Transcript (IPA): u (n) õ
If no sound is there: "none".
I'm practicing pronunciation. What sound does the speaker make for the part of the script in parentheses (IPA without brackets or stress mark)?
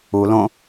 l